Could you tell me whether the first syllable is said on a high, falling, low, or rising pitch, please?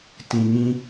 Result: low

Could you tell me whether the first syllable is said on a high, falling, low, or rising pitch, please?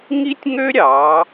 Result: high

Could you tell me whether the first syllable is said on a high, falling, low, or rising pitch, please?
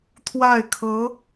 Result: falling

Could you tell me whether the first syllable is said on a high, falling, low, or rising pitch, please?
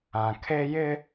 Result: low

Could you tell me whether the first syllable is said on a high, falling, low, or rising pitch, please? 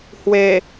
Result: low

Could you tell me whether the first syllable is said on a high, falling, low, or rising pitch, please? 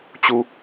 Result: low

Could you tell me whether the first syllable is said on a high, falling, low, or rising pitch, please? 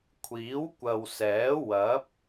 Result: rising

